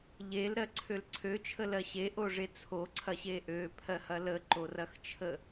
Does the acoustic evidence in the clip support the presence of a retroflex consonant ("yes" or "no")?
yes